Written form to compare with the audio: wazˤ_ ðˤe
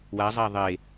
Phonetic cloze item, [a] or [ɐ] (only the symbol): a